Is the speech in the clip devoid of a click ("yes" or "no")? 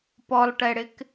yes